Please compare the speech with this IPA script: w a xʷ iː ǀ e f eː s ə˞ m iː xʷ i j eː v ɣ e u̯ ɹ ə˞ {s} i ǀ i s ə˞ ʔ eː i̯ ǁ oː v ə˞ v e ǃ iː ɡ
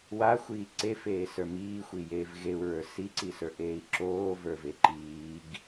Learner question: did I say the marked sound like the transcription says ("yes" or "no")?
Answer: yes